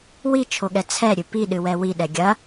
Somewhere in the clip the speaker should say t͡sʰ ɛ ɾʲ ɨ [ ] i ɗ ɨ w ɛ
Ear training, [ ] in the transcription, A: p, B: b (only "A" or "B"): A